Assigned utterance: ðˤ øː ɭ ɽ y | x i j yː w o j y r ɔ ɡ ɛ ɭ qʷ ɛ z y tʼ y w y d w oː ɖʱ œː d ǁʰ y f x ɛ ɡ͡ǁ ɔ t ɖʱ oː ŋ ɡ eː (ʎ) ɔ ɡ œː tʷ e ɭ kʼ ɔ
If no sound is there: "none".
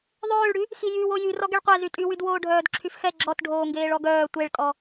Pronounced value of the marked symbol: ɭ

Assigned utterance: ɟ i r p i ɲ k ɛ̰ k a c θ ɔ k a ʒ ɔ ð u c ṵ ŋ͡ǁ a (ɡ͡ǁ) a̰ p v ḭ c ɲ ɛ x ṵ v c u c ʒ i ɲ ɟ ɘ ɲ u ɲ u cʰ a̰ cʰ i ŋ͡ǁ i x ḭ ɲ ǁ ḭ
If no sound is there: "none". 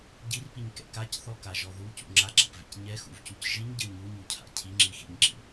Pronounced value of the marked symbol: ɡ͡ǁ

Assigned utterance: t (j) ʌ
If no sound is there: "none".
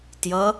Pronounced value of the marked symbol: j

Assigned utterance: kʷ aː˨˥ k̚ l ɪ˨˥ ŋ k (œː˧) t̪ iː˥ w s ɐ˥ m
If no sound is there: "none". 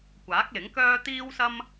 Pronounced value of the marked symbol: œː˥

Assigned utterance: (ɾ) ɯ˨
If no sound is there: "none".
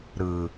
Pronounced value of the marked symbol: ɾ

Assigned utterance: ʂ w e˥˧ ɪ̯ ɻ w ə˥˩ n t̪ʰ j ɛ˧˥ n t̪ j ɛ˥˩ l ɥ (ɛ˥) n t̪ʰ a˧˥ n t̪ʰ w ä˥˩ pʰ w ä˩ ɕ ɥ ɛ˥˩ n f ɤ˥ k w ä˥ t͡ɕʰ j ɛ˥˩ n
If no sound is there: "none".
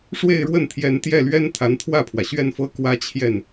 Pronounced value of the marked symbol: ɛ˥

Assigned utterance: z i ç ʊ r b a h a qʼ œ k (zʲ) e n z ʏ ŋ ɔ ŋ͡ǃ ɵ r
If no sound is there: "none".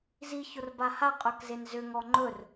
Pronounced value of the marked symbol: z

